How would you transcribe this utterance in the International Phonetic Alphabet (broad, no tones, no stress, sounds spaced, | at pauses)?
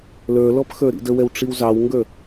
l ə˞ l ɔ p x ə˞ ɾ ḭ d ə w ɛ w ʈ͡ʂ i w z ɑ w ŋ ɡ ə˞